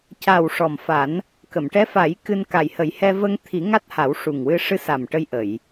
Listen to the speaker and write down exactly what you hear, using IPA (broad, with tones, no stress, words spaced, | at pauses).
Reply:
ca˨˩w ʂɔ˨˩mfa˨˩˦n | kə˨˩˨mʈɛ˧˥fa˨˩˦j kɨ˧nka˨˩jhə˨˩˦jhɛ˧ və˧ŋt̪ʰi˨˩˦ ŋa˦˥t̚ha˨˩˦wʂu˨˩ŋwɨ˧ ʂɨ˧˥sa˨˩m ʈə˧jʔə˨˩˨j